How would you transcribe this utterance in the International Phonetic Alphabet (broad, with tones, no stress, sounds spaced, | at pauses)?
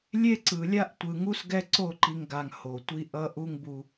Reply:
lʲ e˦ ǀ ɯ˨ lʲ a˦ ʔ tʷ ɯ˨ ŋ u˦ s ɡ ɛ˦ ǀ o˦˨ ǃ i˨ ŋ ɡ a˨ ŋ h o˨ tʷ i˦ ʔ ʌ˦ ʔ u˦ ŋ b u˦